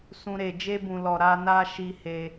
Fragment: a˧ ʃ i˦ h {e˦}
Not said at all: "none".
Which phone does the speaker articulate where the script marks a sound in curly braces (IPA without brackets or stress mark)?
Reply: e˧